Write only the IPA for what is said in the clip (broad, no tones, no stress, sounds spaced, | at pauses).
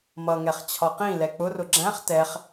m ʌ ŋ ɛ χ t͡ɕʰ ɒ q ĩ l ɛ k͡p ʊ r ʊ ɡ͡ǁ æ̃ χ t ɛ χ